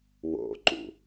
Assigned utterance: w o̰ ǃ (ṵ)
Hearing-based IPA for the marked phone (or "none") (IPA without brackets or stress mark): ṵ